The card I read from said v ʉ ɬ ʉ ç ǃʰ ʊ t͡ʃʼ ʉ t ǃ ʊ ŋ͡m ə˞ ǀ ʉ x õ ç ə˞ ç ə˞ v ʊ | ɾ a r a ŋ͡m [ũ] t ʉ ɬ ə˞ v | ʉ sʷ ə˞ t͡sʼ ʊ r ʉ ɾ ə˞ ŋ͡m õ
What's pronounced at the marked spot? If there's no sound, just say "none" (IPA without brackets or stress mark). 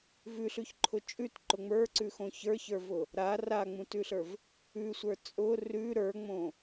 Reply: ũ